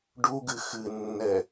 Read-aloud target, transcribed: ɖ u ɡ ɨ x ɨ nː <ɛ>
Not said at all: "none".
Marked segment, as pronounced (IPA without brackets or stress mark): ɛ